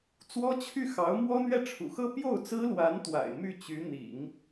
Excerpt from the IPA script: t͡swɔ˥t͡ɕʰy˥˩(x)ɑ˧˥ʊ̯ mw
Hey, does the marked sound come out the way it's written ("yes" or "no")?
yes